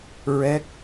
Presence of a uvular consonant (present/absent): absent